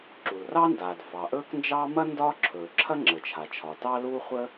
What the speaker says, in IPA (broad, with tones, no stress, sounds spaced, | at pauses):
ǁ u˩ l r ɑ˥ n d aː˩ d f ɑ˩ ʔ ɵː˥ k n d͡ʒ ɑː˥ m ɐ˥ n d ɒː˥ ǁʰ ɵː˩ ǁʰ ɐ˥ ŋ͡ǁ ə˩ t͡ʃʰ a˩ t͡ʃʰ ɒ˩ t ɑ˥ l uː˥ χʷ ə˥